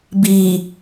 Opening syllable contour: low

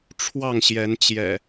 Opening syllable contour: falling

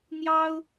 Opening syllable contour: high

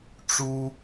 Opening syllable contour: high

